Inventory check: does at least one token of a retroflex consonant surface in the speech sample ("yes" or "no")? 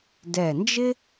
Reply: no